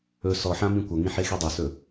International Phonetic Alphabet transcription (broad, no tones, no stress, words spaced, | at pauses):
ɵ sɔħã mĩkʷʌŋĩ ħexidˤɵsɵ